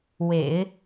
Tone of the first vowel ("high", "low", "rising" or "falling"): low